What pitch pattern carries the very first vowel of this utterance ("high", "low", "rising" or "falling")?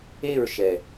falling